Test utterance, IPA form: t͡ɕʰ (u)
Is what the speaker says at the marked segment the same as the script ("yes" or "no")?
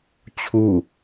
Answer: yes